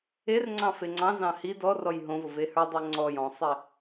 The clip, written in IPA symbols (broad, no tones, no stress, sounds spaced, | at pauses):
e r ŋ͡ǀ ɑ̃ f e ŋ͡ǀ ɑ̃ z ɑ̃ h i d ɔ r ɔ j ɦ õ v ʊ v e h ə˞ dˤ ɜ ŋ͡ǀ ɔ j ɔ̃ sˤ e